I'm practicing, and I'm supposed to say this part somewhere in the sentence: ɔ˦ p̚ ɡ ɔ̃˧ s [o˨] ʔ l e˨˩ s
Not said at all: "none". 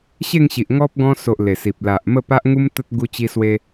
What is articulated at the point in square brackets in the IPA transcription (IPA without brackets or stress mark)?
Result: o˨